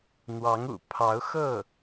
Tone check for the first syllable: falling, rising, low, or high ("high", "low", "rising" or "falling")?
rising